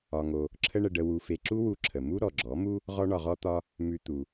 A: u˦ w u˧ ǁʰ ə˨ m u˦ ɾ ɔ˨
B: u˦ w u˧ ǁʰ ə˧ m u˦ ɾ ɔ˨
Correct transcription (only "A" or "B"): A